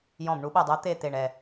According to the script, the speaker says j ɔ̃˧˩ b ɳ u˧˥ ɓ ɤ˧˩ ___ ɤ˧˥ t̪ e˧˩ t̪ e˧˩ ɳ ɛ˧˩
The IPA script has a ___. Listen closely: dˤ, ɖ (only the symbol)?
dˤ